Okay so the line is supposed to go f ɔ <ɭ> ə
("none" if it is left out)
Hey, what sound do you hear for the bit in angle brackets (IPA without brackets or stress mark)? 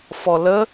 l